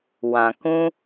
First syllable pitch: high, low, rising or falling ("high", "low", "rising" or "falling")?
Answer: low